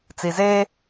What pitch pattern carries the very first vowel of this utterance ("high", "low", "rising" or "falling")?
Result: low